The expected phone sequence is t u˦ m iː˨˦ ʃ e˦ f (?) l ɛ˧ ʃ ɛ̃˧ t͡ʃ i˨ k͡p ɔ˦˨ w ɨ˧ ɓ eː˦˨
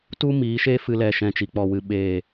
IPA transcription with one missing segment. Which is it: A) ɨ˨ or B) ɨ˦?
B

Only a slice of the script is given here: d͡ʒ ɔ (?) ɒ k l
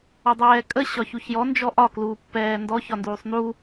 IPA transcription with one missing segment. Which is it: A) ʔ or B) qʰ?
A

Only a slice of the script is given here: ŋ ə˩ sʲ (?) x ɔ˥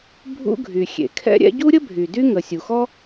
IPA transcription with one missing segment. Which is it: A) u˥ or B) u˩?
B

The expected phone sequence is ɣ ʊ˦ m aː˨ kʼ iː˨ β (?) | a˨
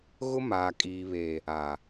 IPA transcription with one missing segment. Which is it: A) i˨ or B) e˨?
B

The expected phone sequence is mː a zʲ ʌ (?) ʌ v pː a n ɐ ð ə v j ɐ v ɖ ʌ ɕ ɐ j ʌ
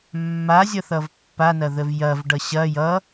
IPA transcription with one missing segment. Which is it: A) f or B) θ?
B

